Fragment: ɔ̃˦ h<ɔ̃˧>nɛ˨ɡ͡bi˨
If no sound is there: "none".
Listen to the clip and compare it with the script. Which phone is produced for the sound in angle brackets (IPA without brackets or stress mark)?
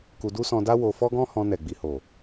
ɔ̃˧